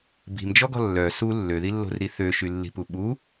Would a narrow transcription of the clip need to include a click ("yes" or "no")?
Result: no